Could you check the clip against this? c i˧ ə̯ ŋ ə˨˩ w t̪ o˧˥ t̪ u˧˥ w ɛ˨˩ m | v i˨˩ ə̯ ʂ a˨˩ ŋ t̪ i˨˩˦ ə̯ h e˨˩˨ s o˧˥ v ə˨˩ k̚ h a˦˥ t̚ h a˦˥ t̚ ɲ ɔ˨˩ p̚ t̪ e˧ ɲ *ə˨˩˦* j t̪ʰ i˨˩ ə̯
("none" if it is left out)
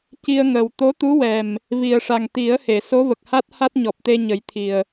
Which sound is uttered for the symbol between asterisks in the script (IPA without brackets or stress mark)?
ə˨˩˦